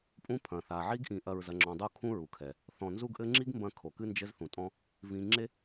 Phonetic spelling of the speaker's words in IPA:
pʼ ũ˦ pʰ ɐ̃˨ θ a˨ ʕ i˦ ɡ ʔ ĩ˧ ʔ ɐ˧ ɹ z ɐ˨ ŋ͡ǁ ɔ̃˨ dˤ o˦ kʰ ũ˦ ɹ u˨ kʰ ɛ˨ | θ ɔ̃˨ n z u˦ ɡ ʔ ɘ˦ ŋ͡ǁ i˦ ɡ m b ɐ̃˧ kʰ o˨ k ɨ˦ n d͡ʒ ɘ˦ z θ ũ˨ tʼ ɔ̃˧ | v ĩ˨ ŋ͡ǁ e˦

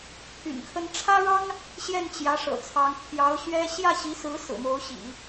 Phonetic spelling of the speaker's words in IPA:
pʰ y̰˨˩ n kʰ ə˥ n ʈ͡ʂʰ ä˥ ɻ ɑ˥ ŋ | ɕ j ɛ˥˩ n t͡ɕ j ä˧˥ ʂ ɤ̰˨˩ t͡sʰ ɑ˧˥ ŋ pʰ j ɑ˧˥ ʊ̯ ɕ ɥ ɛ˥ ɕ j ä˥˩ ɕ i˧˥ s ɹ̩˧˥ s ɹ̩˨˩ m o˧˥ ʊ̯ ɕ ḭ˨˩˦

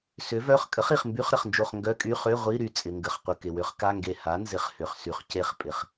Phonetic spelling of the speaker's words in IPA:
s ʏ˩˥ v œ˧˥˧ χ kʼ ə˩˥ χ i˩ χ m b y˧˥˧ χ ɾ ə˩ χ n d͡ʒ o˧˩ χ ŋ ɡ œ˧˥˧ kʼ y˧˥˧ χ ø˧˥˧ ʁʷ i˧˥˧ ɾ y˧˩ t͡sʼ ɪ˩ ŋ ɡ ə˩ χ qʷ ə˩ k ɪ˩ w ʏ˩˥ χ k a˧˥˧ ŋ ɡ e˧˩ h a˩˥ n z ɪ˩˥ χ h ʏ˩ χ s y˩ χ c e˧˩ χ pʼ ɪ˩ χ

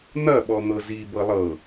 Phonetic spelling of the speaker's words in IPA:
n̪ ɐ ɓ ɔ n̪ ɤ z i b ɤ lˠ ɤ

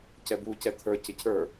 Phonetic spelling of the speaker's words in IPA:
c ɛ b u c ɛ t̪ʰ ə˞ c ɪ cʰ ə˞

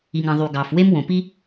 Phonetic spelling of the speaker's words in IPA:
i˩ ŋ ɑ̃˩ ðˤ y˩ ɡ ɑ˩ f w e˥ m w õ˩ p i˥

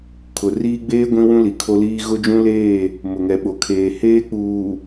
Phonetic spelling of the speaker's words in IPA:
kʰ ʊ˨ r iː˦ ɡ͡b eː˦ ɡʷ ĩ˦ w ũ˦ l i˨ kʰ o˦ l iː˦ ɣ ʊ˦ d͡ʒ ũ˦ l eː˦˨ | m ʊ˨ ŋ ɛ˨ ɓ o˨ kʰ eː˨ h eː˦ k͡p uː˨

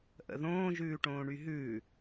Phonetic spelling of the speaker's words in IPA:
ʔ ə̰ ð õː ʒ ʉː ʈ õː ɳ y ɦ ʉː

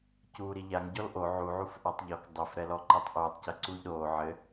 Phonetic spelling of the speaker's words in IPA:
c uː ɾ i ʎ a ŋ ɟ ɔ l ʔ o ʕ u ʕ u f ʔ a tˤ ʎ ɔ k dˤ ɘ f ɾ ɛ l ɔ ǃ ɛ tˤ ʔ uː tˤ c ɐ ǀ uː ʎ ɾ oː ʕ ɘ

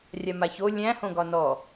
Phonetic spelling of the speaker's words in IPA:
rʲ a m a ç o lʲ æ̃ h õ ɡ ɒ n ɔ

